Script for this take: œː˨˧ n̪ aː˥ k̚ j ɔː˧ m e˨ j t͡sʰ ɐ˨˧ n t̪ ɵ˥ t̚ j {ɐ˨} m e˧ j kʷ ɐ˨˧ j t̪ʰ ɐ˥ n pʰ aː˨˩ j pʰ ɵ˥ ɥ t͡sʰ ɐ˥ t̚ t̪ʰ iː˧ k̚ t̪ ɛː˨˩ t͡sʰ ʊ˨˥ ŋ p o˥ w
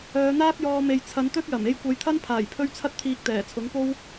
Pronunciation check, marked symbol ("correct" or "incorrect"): incorrect